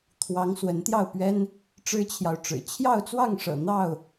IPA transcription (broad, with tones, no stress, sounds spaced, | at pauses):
t̪ʰ w ɑ˨˦ ŋ s w ə˨˦ n t̪ j ɑ˥˨ ʊ̯ p ɥ ɛ˦ n | ʈ͡ʂ ɻ̩˦ t͡ɕʰ j ɑ˨ ʊ̯ ʈ͡ʂ ɻ̩˨˩ t͡ɕʰ j ɑ˥˨ ʊ̯ t͡s w ɑ˥˨ ŋ ʂ ɤ̰˨˩ n̪ ɑ˥˨ ʊ̯